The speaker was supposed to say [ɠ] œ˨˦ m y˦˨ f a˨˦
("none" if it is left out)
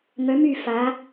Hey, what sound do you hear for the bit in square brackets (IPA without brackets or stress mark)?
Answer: ŋ